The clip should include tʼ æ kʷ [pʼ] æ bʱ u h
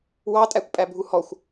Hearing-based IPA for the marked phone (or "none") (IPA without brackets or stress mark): pʼ